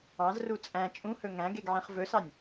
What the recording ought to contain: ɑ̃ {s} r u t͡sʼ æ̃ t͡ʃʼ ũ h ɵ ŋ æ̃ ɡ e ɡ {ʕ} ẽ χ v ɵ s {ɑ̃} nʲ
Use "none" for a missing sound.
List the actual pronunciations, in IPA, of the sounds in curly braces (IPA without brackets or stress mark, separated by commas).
z, ʕ, ɑ